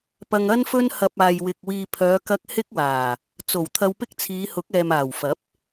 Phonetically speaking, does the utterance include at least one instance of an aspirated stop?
yes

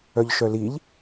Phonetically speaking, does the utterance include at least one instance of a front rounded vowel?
yes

